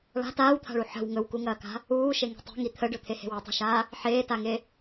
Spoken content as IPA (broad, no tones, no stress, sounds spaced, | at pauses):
ɭ a̤ t aː w t̪ʰ a̤ ɭ u ħ ə̤ w ŋ ɵ w k u ŋ ɐː k a̤ | uː ʃ e ŋ i̤ tˤ e̤ ŋ i t̪ʰ ə ɖ ɵ t̪ʰ e h e̤ w o tˤ e̤ ʃ aː | ħ eː t a ŋ e